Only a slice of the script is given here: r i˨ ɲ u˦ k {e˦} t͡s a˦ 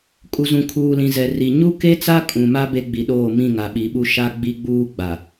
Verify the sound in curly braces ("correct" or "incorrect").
correct